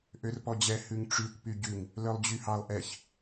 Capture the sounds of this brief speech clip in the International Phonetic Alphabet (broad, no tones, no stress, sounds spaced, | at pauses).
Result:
ʔ ø r p ɔ d͡ʑ ɛ h ʉ ŋ ʈ͡ʂ y kʷ p y ɟ ʉ ŋ | l œ lˠ d͡ʑ y h ɑ lˠ ʔ ɛ ç